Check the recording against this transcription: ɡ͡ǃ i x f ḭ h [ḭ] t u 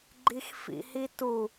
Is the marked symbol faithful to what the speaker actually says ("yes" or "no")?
no